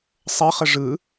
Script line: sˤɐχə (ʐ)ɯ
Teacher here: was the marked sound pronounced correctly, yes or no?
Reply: yes